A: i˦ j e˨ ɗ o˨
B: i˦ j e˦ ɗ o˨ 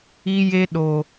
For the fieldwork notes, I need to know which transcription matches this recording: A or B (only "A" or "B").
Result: B